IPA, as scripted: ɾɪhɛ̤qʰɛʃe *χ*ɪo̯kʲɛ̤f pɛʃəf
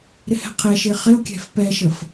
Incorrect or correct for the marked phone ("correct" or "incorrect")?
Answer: correct